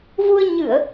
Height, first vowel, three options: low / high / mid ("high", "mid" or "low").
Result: high